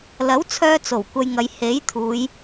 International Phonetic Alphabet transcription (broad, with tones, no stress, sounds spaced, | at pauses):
l ɐ˨˥ w t͡sʰ œː˧ t͡s o˨˩ w kʷ ɐ˧ j ŋ ɐ˨˧ j h e˨˥ j t̪ʰ uː˨˧ j